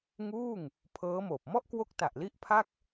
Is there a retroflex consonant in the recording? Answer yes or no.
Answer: no